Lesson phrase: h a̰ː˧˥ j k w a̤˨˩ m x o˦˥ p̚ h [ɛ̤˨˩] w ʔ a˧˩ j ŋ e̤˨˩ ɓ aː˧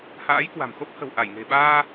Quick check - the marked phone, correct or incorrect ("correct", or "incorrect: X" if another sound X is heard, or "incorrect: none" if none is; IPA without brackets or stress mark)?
incorrect: ə̤˨˩